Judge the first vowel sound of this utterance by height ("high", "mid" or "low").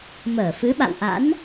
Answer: mid